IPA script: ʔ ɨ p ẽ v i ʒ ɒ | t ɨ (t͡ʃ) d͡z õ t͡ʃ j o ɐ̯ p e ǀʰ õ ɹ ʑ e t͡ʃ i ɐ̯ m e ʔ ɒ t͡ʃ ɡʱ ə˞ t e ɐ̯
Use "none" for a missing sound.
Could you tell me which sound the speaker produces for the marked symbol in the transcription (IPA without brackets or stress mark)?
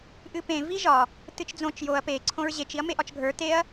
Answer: t͡ʃ